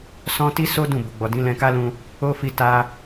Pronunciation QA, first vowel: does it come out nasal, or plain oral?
nasal